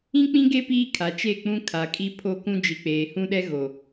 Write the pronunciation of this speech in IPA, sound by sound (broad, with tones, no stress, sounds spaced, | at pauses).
ĩ˦ k͡p ĩ˦ ɡ e˦ p iː˦ kʰ a˨ t͡ʃ e˦˨ k͡p ũ˦ kʰ a˨ kʼ i˦ pʰ o˦ k ũ˦ d͡ʒ i˨ k͡p eː˨ h ũ˦ ɗ ɛ˦ ɣ o˨